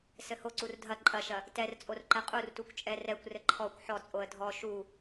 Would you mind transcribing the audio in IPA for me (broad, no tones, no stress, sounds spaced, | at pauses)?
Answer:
s ɘ h o ǀ u r dʱ ɐ ǃʼ ɐ ʃ ɐ | t ɛ r t͡sʼ o r ǃ ɛ qʼ u r t u kʷ t͡ʃʼ ɛ r ɛ kʷ r ɘ ǃʰ ɔ kʷ ħ ɔ t͡sʼ o ə̯ dʱ ɔ ʃ u